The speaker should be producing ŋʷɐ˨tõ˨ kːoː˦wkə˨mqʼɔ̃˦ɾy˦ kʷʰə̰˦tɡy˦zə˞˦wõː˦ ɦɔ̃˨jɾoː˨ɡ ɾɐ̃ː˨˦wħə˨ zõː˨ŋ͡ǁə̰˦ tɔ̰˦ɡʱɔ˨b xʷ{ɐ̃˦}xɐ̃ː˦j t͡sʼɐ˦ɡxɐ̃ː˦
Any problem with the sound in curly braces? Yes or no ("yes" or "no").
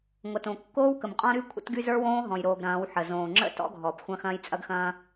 no